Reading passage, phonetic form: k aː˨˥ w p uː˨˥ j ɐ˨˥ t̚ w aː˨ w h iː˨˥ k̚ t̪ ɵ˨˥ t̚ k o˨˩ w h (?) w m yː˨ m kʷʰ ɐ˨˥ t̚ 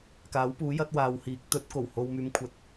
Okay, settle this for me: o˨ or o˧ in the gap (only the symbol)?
o˨